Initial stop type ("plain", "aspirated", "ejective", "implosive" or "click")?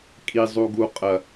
ejective